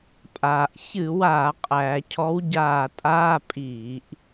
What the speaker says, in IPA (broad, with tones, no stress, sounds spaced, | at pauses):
pʼ aː˩ ʔ ç ɨ˧˩˧ w aː˧˩˧ qʼ æː˩ cʰ ɔ˨˦ w ɟ aː˧˩ tʼ aː˧˥˧ pʼ iː˧˩˧ ʔ